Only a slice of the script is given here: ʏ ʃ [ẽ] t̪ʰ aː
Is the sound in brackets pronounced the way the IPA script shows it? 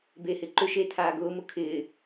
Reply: no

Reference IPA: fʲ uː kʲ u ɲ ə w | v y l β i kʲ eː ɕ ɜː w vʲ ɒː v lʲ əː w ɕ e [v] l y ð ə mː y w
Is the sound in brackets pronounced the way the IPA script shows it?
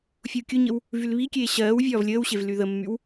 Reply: yes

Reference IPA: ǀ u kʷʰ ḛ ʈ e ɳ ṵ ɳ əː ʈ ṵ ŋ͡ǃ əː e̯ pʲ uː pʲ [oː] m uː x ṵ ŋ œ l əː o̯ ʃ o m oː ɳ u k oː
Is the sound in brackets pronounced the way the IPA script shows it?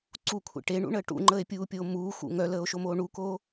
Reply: yes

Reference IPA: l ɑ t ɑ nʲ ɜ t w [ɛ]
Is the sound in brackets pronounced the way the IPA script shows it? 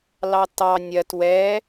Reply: yes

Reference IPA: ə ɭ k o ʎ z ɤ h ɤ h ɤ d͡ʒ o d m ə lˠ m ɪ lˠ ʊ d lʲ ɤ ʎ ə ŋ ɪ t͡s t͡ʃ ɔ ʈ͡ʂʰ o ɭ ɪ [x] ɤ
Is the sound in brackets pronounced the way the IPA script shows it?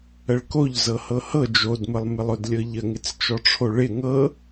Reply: no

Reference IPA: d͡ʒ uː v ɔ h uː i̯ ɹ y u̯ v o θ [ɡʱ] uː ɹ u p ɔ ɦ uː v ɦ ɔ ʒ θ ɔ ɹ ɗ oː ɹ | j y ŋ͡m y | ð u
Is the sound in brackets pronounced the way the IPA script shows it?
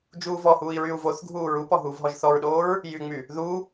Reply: yes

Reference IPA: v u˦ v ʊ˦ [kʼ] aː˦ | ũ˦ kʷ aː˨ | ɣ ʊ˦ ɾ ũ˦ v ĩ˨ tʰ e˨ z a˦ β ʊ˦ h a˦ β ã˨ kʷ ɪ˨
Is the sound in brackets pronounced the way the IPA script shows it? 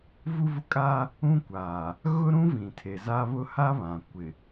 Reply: yes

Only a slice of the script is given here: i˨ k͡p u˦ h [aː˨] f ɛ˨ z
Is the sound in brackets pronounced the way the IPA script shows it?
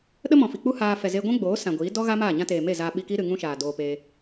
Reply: no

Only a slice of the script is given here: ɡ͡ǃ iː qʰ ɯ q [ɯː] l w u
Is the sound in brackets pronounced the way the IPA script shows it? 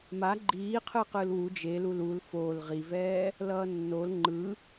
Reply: yes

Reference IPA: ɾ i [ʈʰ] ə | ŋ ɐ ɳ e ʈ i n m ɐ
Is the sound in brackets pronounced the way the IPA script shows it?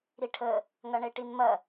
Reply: yes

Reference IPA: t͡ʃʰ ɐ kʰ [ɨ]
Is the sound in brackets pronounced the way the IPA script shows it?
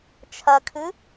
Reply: yes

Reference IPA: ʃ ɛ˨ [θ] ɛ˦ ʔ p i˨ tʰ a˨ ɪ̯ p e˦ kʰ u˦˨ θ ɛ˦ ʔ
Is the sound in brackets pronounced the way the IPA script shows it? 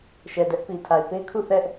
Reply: no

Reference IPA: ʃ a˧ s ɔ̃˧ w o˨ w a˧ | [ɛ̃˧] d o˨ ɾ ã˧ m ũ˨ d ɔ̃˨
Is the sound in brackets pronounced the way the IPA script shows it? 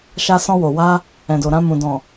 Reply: no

